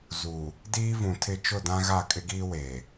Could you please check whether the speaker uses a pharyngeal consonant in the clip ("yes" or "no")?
no